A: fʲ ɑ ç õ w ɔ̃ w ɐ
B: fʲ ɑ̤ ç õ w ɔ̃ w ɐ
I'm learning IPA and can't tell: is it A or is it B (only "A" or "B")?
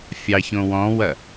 A